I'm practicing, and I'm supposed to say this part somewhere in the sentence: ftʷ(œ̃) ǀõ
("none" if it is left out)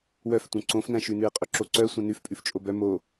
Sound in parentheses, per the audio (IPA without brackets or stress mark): œ̃